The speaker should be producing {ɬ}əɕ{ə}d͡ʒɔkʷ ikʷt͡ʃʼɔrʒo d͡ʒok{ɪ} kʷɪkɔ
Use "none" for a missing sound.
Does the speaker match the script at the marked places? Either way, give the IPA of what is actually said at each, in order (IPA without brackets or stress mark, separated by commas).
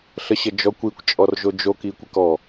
ɬ, ə, i